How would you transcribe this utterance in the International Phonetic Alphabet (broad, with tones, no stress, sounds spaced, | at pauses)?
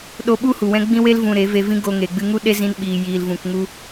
ɗ o˧ ɓ u˦ h u˨ w ɛ̃˧ ɡ͡b ĩ˧ w e˧ l v ũ˨ ɾ e˨˦ v e˧ v ĩ˦ ɡ o˧ ŋ e˨ ɡ͡b ɨ˧ ŋ u˦ ɗ e˦ z ĩ˧ n ɓ iː˨ j iː˨ l v ũ˨ k ŋ u˧